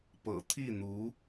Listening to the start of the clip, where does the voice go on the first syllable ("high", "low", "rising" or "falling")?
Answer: low